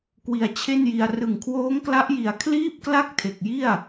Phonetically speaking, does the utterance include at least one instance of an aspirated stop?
yes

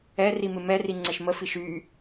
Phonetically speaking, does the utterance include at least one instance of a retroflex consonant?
no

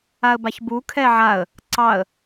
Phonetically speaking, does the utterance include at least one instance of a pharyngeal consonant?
yes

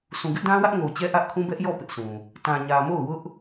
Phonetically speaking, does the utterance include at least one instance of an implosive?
no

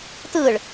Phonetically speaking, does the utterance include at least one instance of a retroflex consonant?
yes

